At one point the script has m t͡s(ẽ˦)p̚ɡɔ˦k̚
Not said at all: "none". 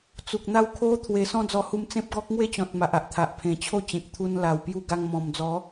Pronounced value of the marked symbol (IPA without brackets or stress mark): ẽ˦